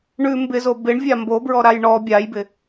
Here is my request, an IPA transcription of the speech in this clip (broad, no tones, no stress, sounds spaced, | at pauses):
ɳ ʉ m b ɪ z o b ɪ ɳ vʲ a m b o b ɹ ɔ ɾ a j ɳ ɔ bʲ a j b ɪ